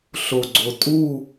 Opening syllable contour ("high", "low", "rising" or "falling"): low